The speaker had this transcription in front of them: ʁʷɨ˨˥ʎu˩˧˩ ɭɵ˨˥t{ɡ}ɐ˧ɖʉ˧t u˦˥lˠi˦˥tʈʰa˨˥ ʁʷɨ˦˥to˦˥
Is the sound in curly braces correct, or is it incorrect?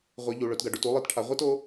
correct